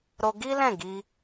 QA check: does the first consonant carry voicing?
yes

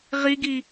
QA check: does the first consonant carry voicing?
yes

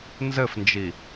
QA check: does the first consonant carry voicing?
yes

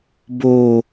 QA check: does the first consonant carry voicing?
yes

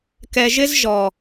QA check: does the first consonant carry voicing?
no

